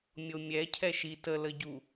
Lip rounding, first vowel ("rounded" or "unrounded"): rounded